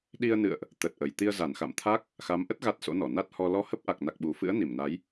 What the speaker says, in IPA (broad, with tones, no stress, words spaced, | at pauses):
ɗi˧ə̯nɨ̰˧˨ə̯ʔ | t̪ə˨˩t̚ʔə˨˩j t̪i˧ə̯za˧˩nxa̰˧˨mt̪ʰa˦˥k̚ | xa˨˦mʔə˦˥t̚ ɣa˦˥t̚so̰˧˥nɔ˧˩ na˦˥t̚hɔ˧ lɔ˧hə˦˥p̚ ʔa˨˩k̚na˨˩k̚ɓu˨˩fɨ̰˧˥ə̯ ni˧˩mna˨˦j